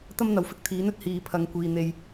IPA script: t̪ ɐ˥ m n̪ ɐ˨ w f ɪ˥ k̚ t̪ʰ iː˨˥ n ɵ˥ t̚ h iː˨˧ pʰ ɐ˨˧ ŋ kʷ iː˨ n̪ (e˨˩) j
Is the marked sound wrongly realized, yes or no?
yes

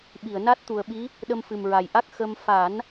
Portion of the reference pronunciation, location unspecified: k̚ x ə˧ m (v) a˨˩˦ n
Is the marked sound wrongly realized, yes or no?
yes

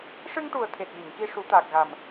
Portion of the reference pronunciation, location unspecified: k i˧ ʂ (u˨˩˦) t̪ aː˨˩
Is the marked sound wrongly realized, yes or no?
no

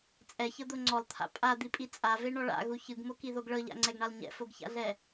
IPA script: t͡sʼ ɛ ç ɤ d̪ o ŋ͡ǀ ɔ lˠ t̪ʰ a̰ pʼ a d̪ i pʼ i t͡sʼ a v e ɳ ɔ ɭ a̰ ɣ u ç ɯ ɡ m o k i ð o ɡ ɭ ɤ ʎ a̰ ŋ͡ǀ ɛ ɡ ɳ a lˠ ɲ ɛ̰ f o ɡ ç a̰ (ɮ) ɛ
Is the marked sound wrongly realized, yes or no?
no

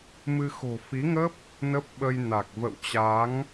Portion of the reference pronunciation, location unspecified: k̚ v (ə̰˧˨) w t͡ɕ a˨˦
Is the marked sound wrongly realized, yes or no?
no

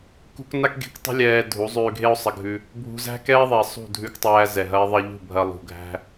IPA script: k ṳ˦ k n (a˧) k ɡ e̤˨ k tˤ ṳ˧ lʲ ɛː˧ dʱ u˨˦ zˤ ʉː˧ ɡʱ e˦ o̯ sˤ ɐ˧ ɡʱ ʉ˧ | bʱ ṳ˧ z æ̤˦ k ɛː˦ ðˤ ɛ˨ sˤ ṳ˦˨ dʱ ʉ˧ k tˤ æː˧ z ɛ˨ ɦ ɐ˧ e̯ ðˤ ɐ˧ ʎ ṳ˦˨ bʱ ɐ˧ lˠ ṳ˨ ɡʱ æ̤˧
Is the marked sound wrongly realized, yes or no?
no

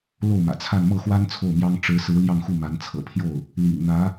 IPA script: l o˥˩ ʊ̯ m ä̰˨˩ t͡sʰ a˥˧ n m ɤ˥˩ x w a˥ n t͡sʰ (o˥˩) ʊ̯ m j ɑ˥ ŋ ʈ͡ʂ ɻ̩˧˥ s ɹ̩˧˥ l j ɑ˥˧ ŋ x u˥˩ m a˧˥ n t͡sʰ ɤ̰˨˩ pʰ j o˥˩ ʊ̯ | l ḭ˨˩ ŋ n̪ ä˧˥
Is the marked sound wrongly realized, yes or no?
no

